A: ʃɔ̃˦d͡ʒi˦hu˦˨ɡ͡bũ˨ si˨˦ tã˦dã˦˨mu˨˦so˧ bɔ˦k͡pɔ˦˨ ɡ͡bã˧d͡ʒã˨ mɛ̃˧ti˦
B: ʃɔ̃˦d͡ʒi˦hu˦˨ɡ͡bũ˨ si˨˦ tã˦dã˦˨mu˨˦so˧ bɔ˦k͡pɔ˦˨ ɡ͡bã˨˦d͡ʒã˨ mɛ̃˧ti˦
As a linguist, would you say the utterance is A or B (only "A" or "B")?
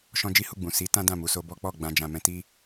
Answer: A